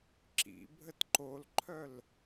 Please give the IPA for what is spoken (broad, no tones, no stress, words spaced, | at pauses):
ǁḭ bʱətǃolǃʰœl